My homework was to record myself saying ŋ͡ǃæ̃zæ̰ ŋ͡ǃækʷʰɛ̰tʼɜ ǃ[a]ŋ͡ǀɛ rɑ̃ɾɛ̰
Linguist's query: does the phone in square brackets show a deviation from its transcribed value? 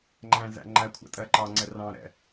yes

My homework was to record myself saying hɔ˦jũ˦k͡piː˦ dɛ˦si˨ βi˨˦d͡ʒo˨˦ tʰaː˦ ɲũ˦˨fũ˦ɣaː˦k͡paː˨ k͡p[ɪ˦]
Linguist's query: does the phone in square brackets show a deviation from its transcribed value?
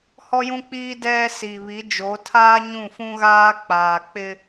no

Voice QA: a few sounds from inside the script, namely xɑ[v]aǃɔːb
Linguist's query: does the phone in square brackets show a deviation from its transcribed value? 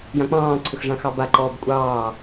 yes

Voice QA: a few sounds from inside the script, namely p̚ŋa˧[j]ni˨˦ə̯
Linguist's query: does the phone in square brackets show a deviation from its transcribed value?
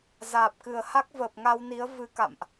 yes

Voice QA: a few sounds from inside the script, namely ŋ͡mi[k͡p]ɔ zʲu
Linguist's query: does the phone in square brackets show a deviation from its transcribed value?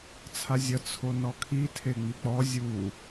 no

